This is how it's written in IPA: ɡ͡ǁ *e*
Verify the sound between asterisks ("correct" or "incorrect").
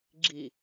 incorrect